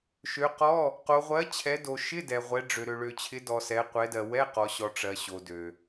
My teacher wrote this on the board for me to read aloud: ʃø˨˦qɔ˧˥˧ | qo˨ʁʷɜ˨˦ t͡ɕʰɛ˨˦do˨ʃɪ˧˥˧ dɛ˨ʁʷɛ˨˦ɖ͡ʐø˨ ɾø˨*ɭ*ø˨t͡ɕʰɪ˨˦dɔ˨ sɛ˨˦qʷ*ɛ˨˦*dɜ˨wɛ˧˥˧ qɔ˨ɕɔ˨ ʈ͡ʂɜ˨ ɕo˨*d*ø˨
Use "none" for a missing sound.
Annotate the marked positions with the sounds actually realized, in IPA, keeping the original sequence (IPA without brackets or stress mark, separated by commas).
ɭ, ɛ˨˦, d